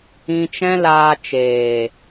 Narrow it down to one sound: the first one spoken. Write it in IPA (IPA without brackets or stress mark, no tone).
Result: ĩ